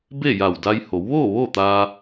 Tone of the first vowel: falling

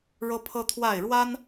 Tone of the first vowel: high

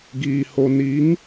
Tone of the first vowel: low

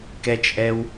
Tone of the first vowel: high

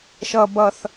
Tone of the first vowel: high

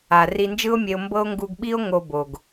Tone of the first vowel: low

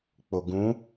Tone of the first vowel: low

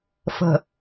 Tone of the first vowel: low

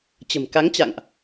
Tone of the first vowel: low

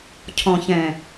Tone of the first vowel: low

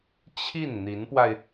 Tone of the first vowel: falling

